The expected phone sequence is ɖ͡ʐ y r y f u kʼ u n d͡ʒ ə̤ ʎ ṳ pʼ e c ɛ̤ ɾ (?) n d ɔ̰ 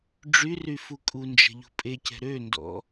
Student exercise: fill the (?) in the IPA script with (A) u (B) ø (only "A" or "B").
B